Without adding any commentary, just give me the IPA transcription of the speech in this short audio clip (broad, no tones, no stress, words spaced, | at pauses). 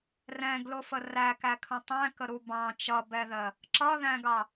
rɛ̃ɡlʊfə rækækʰə̃ tˤæ̃kəɾu bɑ̃ t͡ʃʌbɛðɜ | ǁʌðæ̃ɡɑ